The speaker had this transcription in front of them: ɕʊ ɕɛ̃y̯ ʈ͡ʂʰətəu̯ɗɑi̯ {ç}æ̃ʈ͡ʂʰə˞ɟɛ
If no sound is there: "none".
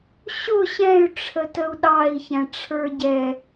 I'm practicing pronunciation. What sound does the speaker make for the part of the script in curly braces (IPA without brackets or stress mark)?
ç